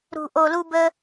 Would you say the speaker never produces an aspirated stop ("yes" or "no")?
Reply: yes